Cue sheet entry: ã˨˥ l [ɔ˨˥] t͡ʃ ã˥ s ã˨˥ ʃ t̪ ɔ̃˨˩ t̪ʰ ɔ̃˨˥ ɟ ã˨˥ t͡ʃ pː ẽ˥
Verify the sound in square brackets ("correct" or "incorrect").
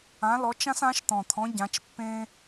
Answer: correct